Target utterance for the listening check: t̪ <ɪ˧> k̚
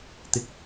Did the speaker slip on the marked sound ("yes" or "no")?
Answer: yes